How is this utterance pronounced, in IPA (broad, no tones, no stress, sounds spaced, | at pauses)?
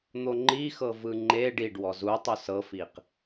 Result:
n̪ o ŋ͡ǃ i x ɤ v ɯ ŋ͡ǃ e ɖ i ɖ w ɔ z u tˤ u s ɤ f i q